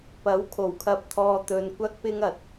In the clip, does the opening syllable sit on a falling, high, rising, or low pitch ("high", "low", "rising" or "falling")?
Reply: rising